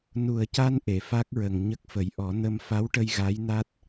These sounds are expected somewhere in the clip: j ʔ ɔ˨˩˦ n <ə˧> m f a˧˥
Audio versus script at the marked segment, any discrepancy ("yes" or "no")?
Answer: no